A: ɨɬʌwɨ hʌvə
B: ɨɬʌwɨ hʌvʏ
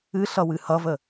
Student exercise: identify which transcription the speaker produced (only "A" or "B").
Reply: A